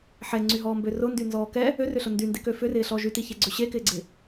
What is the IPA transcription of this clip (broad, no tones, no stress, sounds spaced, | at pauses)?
ħ ɛ ŋ͡ǀ y ɦ ɔː m b ø r ʊ n d y n z ɔː k ɛ | ø r ʏ ɬ ʊ n d y n d ɪ k ø f ʏ r ɪː ɬ ɔ ʒ y t i ç e ɡ͡ǀ ʏ ɕ e k ɪː ɡ͡ǀ ɪ